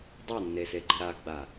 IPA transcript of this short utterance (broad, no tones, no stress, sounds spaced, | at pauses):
dˤ a nː e s e ɡ͡ǃ i ɾ a ɡ ɡ͡b a